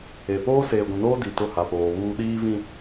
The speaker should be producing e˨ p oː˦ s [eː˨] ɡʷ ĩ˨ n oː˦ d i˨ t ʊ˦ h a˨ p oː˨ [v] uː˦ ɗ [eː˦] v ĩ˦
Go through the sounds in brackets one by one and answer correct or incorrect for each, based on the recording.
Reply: correct, incorrect: β, incorrect: iː˦

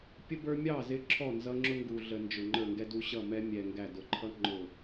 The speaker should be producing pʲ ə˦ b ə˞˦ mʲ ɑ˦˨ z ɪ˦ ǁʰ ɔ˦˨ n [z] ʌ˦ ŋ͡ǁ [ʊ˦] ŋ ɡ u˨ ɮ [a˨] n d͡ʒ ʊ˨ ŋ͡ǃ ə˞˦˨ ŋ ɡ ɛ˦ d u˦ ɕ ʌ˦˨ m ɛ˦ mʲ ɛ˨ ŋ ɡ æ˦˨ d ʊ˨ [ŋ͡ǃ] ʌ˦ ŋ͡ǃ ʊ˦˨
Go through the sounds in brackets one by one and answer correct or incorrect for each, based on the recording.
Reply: correct, correct, incorrect: ə˨, incorrect: ǃʰ

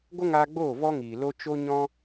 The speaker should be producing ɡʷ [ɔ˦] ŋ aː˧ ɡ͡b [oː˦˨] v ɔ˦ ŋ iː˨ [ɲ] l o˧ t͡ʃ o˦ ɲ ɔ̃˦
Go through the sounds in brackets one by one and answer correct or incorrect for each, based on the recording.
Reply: incorrect: ə˦, correct, incorrect: none

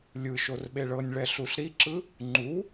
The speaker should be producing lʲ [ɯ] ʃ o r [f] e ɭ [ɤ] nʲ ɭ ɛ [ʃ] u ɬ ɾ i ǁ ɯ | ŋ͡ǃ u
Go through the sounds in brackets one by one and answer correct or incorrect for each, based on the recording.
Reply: correct, incorrect: ɓ, correct, incorrect: ɬ

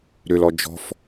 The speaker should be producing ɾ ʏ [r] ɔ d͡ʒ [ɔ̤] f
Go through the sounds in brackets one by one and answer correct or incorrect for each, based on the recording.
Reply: incorrect: l, correct

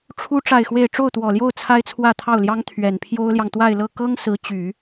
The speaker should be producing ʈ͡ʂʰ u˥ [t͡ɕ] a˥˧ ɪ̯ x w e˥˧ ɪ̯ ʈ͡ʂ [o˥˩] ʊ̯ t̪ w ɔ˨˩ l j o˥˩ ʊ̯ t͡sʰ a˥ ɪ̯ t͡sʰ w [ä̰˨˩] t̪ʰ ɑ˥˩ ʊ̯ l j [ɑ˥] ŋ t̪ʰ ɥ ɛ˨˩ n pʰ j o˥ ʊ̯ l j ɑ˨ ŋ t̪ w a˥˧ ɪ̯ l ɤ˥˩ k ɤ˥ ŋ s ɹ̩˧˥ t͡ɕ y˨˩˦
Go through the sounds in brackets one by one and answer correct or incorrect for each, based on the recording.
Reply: incorrect: ʈ͡ʂ, correct, incorrect: ä˥˧, correct

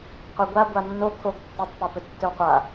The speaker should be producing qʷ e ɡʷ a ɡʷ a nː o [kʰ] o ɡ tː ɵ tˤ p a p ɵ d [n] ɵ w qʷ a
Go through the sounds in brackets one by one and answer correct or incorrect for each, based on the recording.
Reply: correct, incorrect: tː

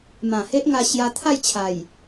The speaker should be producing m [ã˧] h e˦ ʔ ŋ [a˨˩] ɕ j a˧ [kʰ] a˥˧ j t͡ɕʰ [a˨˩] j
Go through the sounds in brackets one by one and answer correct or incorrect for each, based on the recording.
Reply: incorrect: ã˨˩, incorrect: a˧, incorrect: t̪ʰ, correct

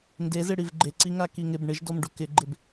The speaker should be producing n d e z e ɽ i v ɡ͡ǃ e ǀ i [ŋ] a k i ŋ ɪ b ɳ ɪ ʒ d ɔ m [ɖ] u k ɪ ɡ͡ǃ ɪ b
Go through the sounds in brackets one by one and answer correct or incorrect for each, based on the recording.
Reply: correct, correct

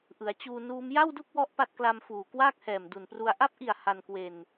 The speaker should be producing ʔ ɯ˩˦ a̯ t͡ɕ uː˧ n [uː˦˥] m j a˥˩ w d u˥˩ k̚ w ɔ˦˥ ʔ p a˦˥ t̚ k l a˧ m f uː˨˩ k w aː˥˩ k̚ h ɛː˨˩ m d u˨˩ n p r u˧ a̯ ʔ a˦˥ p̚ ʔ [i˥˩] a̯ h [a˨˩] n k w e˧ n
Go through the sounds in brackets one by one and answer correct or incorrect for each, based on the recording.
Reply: correct, incorrect: i˨˩, incorrect: a˧

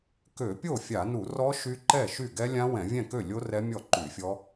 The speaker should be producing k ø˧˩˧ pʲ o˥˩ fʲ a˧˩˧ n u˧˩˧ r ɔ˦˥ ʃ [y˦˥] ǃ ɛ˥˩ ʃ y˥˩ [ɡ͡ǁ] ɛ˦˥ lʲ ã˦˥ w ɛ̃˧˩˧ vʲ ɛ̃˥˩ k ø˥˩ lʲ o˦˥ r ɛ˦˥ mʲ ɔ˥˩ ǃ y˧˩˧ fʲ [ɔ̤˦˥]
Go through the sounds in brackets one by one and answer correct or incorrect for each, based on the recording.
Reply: correct, incorrect: ɡ, incorrect: ɔ˦˥

